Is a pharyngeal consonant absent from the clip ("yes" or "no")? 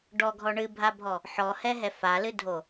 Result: no